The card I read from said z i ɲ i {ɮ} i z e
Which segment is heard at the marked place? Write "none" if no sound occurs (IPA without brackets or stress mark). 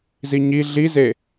ɮ